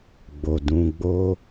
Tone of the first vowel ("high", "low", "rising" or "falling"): low